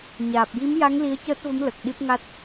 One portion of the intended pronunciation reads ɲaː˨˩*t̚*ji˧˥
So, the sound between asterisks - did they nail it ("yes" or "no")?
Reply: no